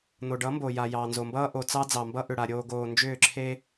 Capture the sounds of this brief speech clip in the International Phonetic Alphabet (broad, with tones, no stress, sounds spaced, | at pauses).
n̪ o˨ ɖ ʌ˨˦ m b o˨ j a˨ j ɑ˨ n z o˨ m b ʌː˦ ʔ o˨ t͡s ɑ˦ d͡z ɑ˨ m b ʌ˦ ʔ ʏ˨ ɽ a˨ ɾʲ oː˨ ɡ oː˨ n d͡ʒ ʏː˦˨ ǁʰ e˦